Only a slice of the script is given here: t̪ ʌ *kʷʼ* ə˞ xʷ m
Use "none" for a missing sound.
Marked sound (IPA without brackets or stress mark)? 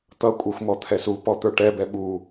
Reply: kʷʼ